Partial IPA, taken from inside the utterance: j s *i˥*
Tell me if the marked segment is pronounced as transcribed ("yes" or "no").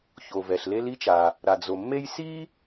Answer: yes